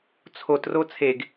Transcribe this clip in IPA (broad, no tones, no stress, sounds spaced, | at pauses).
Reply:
t͡sʰ o t r o t͡sʰ e ɡ